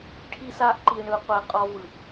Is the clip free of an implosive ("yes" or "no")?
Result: yes